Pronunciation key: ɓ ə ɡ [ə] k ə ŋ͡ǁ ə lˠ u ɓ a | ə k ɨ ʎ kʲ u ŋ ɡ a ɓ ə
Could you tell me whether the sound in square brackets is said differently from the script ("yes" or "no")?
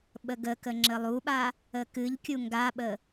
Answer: no